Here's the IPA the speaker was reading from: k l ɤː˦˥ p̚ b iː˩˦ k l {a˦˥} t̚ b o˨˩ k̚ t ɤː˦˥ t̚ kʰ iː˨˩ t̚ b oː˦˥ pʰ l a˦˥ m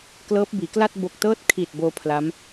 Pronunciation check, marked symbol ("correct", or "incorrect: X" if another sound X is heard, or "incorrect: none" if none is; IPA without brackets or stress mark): incorrect: a˥˩